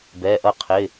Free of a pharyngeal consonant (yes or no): yes